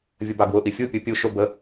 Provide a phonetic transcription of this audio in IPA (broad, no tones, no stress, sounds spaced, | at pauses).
vʲ ə b ɑ ɡ w ʊ ʔ i fʲ u pʲ u pʲ u ʃ ʊ b ə